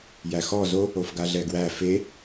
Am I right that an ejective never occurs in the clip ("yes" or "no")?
yes